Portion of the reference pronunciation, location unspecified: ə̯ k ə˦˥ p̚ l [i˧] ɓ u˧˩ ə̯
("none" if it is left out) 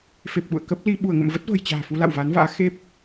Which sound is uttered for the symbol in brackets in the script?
i˧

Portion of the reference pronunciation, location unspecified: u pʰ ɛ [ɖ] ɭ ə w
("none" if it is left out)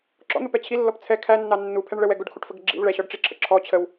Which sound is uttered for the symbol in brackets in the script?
ɳ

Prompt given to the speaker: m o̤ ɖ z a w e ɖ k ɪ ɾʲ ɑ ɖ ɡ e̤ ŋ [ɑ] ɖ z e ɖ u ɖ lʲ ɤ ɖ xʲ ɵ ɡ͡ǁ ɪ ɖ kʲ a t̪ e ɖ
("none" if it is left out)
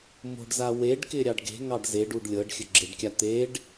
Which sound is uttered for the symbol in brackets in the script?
ɑ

